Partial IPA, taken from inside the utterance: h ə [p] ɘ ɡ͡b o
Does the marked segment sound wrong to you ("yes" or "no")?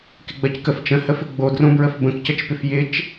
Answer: yes